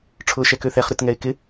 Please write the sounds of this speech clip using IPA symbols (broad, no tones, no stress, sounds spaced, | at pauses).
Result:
ʈ͡ʂʰ ʊː ʃ ɛ k ø θ ɛ χ ɾ ʏ t ŋ ɛ ɪ̯ k ɪ